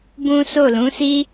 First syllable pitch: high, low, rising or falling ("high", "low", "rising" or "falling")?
high